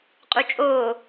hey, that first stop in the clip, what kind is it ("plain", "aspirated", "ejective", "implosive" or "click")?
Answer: ejective